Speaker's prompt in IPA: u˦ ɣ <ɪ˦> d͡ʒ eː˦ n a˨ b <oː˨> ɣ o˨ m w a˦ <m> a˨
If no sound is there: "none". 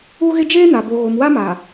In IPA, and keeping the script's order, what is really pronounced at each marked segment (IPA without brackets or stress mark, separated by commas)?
ɪ˦, o˨, m